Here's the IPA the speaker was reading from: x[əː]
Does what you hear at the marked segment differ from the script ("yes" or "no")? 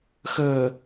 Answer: no